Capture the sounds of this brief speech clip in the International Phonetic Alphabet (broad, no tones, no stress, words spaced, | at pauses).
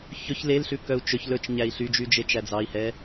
çɵç lelɬʉ kœu̯t͡ʃɵç lɵt͡ʃɲæi̯ ɬyd͡ʒyd͡ʒet͡ʃæ d͡zɑi̯hɛ